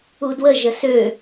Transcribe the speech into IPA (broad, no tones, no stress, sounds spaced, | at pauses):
u d w ə ʒ ə s ø